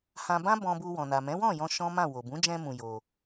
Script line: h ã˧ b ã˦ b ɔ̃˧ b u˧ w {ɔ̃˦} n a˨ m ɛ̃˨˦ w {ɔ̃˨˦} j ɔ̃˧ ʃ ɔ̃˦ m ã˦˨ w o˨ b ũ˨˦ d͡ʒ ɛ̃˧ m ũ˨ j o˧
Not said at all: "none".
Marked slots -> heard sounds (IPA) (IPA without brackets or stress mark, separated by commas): ɔ̃˨, ɔ̃˦˨